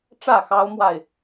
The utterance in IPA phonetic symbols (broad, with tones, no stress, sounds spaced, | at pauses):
ʈ͡ʂ ä˥˨ x ɑ˦ ʊ̯ m w a˥˨ ɪ̯